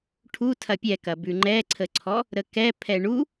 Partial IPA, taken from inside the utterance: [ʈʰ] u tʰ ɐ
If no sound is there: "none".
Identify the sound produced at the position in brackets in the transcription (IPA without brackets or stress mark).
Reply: ʈʰ